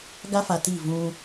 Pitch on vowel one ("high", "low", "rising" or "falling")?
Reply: high